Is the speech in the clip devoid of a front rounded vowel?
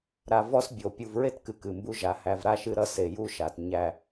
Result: yes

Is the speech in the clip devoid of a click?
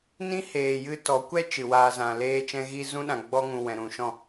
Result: yes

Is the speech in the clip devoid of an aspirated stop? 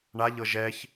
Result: yes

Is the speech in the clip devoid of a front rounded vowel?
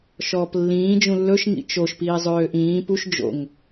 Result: no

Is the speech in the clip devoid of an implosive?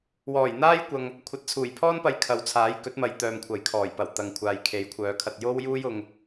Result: yes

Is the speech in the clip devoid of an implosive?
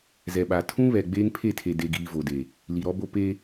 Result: no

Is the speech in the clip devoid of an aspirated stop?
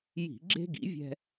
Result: yes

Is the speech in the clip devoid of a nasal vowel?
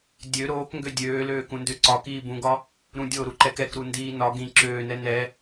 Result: no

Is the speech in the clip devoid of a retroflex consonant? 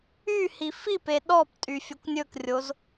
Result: yes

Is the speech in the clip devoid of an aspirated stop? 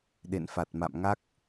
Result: yes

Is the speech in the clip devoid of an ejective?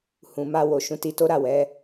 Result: yes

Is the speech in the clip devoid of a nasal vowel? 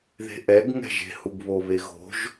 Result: yes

